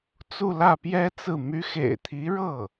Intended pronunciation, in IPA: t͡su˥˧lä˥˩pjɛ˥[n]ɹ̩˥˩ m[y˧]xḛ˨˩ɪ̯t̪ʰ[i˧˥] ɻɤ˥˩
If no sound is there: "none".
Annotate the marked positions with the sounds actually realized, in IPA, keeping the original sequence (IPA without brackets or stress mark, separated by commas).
t͡s, y˧˥, i˧˥